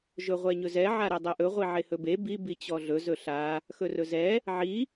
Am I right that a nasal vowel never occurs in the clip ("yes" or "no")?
yes